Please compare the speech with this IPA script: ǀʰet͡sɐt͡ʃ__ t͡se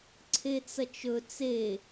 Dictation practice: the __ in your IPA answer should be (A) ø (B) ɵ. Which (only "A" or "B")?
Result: B